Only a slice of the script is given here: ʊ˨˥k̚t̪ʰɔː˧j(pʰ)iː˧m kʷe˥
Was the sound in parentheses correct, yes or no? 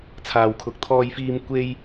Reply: no